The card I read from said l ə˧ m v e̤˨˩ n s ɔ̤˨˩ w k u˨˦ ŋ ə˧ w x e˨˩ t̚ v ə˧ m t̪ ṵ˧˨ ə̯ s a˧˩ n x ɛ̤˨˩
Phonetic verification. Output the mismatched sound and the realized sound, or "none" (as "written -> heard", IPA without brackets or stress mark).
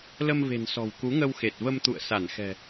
none